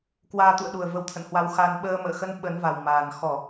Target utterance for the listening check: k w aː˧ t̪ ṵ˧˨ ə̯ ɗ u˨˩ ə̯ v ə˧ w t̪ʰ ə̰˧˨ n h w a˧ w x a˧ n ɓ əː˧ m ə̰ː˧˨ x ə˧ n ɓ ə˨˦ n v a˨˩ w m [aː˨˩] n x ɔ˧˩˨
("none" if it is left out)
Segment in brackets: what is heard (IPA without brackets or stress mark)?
aː˨˩